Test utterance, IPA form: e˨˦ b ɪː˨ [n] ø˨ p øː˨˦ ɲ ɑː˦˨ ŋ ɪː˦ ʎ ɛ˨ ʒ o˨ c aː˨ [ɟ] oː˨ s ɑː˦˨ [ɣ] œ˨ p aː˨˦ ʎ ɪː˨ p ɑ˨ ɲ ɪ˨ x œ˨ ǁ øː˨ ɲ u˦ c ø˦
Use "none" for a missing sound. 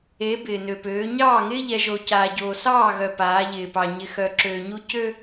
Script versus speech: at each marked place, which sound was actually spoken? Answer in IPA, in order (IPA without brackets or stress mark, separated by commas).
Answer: n, ɟ, ɣ